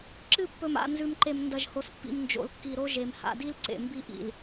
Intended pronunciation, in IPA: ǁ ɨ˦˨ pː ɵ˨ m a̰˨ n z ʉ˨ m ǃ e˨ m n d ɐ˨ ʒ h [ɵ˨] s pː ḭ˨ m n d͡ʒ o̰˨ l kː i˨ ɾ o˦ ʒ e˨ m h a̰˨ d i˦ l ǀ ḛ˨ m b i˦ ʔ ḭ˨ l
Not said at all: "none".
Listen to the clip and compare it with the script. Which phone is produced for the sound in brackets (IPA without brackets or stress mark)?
o˨